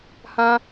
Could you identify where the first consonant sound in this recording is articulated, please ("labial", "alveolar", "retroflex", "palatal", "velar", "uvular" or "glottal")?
glottal